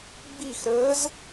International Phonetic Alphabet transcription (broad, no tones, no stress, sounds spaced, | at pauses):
ɡ͡b i x ɾ əː z